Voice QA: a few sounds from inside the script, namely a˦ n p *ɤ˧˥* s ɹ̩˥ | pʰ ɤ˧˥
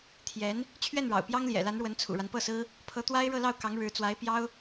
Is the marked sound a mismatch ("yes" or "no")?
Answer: yes